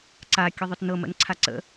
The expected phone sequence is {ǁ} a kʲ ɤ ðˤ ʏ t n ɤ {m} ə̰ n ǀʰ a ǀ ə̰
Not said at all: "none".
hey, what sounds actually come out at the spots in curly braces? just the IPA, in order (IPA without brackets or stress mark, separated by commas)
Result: ǀ, m